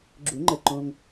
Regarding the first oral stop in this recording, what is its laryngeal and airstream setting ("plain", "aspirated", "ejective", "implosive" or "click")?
click